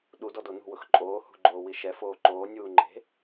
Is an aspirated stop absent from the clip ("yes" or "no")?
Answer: yes